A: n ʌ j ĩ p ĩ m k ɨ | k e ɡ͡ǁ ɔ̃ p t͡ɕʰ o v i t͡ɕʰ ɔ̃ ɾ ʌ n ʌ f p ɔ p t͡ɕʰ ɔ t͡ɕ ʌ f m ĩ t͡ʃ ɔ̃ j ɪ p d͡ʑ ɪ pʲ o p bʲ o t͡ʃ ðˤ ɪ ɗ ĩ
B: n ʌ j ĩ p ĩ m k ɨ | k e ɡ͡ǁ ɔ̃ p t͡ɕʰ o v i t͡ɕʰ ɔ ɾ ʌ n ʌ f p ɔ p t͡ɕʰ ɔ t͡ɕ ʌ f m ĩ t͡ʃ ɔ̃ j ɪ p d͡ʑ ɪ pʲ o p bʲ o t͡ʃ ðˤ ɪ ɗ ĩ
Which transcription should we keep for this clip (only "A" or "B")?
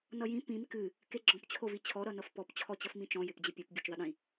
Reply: B